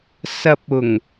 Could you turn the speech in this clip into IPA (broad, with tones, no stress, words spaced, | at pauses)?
sɐ˧p̚ ʊ˨˩ŋ